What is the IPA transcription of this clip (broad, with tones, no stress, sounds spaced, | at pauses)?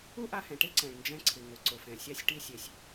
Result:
u˥ ʔ a˧ h ɛ̃˩ ʈ e˥ ǀ ɛ̃˩ ɭ n d͡ʒ ɛ̃˧ ǀʰ ɪ˩ ŋ ʊ˩ ǀ ʊ˩ f ɛ̃˩ sʲ a˧ sʲ ʈ i˧ sʲ e˩ sʲ